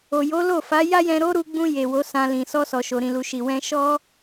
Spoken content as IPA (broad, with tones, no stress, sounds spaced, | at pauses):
o˨ j o˨˦ l o˦˨ f a˨˦ j a˦ j ɛ̃˧ ɾ o˦ ɾ u˧ ɡ͡b ũ˧ j e˨ w o˨˦ s ã˧ l ĩ˨ s ɔ˧ s ɔ˨ ʃ o˨ ɾ ĩ˨ l u˨ ʃ i˨ w ɛ̃˧ ʃ ɔ˦